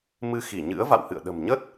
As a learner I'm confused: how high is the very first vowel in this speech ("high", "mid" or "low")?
high